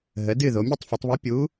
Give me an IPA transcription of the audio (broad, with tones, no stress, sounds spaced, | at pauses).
ɦ ə˩˧ d ɨː˦˨ ð o˩˧ mʲ u˦˨ tˤ f u˩˧ tˤ β o˧˥ pʲ u˧˥